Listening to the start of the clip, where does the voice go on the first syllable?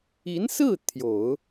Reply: rising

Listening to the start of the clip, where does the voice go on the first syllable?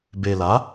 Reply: low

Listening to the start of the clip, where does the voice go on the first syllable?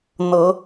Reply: rising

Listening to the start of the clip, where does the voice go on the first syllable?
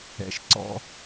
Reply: low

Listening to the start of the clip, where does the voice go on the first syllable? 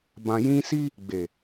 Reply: low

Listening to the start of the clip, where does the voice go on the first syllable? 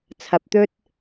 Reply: low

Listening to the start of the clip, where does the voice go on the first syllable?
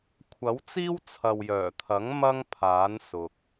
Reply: rising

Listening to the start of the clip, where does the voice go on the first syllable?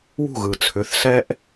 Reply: falling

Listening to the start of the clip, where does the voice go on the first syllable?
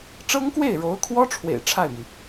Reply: high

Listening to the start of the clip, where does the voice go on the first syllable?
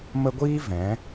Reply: high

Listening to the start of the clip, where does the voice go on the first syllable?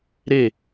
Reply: falling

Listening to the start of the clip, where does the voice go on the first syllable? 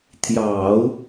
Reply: low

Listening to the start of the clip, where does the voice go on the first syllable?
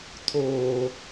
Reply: low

